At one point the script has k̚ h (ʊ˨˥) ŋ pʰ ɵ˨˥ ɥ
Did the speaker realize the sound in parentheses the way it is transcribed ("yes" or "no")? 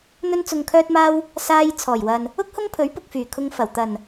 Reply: no